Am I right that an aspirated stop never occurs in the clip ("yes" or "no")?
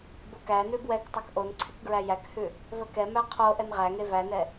no